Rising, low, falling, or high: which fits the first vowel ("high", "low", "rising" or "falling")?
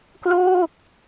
falling